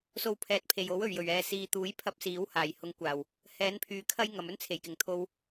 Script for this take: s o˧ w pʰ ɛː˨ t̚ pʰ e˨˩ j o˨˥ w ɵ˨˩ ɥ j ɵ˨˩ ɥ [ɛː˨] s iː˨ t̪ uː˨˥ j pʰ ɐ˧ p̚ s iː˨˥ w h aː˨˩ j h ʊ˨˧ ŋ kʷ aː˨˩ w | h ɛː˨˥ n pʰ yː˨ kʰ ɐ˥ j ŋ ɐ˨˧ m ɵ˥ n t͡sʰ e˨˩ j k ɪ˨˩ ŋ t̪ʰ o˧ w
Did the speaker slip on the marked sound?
no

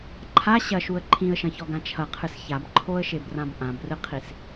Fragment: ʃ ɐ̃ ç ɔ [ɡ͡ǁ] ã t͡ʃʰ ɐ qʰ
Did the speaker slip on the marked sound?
yes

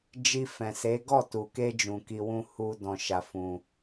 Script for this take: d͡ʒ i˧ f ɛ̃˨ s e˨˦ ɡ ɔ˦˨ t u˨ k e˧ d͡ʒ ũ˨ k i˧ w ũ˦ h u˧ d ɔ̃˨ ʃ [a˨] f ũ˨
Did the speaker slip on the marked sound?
no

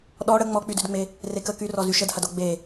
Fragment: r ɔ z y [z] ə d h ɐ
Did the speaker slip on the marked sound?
yes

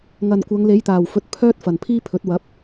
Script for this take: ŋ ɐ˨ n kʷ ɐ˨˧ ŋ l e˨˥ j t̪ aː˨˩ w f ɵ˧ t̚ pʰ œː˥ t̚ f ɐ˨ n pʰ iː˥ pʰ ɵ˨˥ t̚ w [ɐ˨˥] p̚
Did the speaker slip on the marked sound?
no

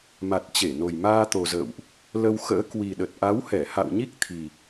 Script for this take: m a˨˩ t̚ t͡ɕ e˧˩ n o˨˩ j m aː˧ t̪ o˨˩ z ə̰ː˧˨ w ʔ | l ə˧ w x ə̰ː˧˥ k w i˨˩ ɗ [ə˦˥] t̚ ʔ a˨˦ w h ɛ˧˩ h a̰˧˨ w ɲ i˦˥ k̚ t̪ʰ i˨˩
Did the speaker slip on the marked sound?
yes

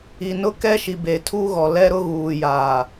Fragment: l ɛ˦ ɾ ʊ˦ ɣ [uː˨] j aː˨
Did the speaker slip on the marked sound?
no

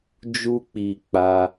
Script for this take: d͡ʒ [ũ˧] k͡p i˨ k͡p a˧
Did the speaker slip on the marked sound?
yes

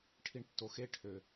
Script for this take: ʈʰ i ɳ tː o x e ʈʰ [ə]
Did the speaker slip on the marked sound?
yes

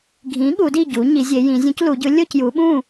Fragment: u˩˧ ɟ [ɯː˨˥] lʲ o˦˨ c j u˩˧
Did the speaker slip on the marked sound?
yes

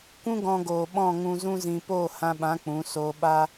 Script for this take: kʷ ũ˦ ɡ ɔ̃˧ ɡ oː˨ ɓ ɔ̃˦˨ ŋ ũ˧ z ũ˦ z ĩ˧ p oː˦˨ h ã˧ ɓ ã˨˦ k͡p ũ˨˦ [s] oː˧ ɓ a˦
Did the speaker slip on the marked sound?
no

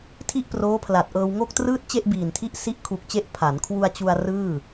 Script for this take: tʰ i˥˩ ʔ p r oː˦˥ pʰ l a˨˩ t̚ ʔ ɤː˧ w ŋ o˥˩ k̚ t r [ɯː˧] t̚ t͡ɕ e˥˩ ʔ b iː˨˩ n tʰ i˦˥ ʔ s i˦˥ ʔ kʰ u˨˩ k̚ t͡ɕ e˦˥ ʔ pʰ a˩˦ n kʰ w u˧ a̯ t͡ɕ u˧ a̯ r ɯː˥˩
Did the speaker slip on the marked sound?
yes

